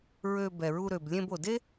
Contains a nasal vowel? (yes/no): yes